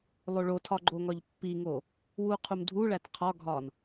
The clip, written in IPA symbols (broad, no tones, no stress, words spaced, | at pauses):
lˠoɭotʰɒ ɡ͡ǃoŋɒʎpːiŋo | wuqʰumdʱuɭæt qʰɒɡʱɒn